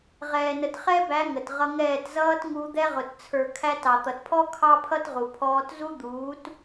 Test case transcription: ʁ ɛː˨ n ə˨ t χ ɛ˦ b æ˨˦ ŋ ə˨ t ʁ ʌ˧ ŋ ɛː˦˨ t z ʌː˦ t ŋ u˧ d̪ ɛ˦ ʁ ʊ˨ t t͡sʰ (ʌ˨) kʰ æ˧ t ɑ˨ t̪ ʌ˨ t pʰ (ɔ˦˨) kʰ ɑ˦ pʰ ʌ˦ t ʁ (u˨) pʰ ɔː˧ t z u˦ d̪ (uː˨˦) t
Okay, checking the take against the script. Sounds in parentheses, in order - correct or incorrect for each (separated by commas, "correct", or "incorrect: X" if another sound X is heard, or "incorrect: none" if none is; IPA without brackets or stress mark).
incorrect: ə˞˨, incorrect: ɔ˦, correct, correct